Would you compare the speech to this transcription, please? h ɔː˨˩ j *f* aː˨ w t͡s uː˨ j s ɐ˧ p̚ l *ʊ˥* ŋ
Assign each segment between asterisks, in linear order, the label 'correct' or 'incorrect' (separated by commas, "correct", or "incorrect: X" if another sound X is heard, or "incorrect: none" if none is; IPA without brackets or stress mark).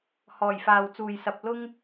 correct, correct